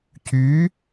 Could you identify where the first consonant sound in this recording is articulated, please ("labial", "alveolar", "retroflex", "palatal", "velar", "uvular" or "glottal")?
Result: palatal